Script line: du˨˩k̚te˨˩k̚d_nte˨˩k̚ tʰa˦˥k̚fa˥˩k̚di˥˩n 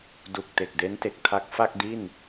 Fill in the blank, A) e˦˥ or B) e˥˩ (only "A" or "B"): A